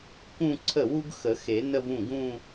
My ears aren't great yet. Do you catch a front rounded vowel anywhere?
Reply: no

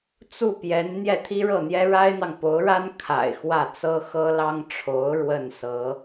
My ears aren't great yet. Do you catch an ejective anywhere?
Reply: no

